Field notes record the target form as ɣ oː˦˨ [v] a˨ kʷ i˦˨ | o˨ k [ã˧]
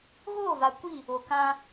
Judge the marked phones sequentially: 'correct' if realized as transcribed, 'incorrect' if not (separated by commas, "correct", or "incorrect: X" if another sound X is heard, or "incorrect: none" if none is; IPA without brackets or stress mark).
correct, correct